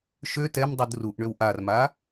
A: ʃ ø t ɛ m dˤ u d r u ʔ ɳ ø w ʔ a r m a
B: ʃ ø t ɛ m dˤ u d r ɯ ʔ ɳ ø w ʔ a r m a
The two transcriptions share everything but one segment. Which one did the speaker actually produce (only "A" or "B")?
A